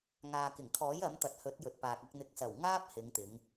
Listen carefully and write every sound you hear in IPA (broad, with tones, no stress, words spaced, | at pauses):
ŋaː˨kɪ˨˩ŋkʰɔː˨˥j ɐ˨˥mt̪ɐ˨t̚ hɵ˨˥t̚jɵ˨t̚paː˨k̚ɐ˧k̚ n̪ɪ˨k̚sɐ˨˩w ŋaː˥p̚hɪ˨˧ŋt̪ɪ˨˧ŋ